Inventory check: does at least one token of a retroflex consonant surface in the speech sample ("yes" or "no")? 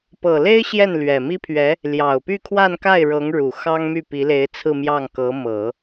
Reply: yes